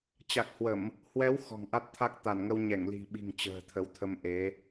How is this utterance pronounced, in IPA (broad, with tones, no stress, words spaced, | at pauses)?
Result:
t͡ɕa˨˩k̚hwə˧˩˨m | hwɛ˨˦w xɔ̤˨˩ŋʔa˦˥t̚t̪ʰa˦˥k̚ t̪a˧˩nŋə˧w ɲɛ˧˩ŋli̤˨˩ɓi̤˨˩ŋ t͡ɕə̤ː˨˩t̪ʰə˨˦wt̪ʰə˧mʔe˨˦